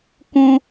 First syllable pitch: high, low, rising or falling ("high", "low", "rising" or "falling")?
high